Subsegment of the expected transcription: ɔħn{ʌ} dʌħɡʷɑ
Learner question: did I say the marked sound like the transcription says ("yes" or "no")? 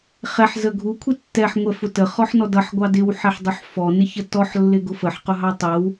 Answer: no